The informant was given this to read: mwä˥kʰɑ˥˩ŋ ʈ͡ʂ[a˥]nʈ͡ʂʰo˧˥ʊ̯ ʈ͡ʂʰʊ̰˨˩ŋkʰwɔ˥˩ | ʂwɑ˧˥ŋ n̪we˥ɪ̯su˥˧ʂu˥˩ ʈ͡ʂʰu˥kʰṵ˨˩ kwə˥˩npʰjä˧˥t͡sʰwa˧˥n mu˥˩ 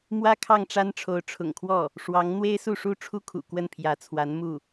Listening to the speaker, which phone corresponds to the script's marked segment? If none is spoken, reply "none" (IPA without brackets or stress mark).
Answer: a˥